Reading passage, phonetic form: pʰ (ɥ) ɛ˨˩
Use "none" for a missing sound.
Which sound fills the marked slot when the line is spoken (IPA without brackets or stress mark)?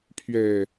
ɥ